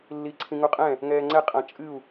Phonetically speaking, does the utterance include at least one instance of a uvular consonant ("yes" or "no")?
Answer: yes